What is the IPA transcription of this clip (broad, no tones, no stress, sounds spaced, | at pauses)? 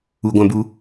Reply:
u ɡʷ æ̃ b u